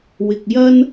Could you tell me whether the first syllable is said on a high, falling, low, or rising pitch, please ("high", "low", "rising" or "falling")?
low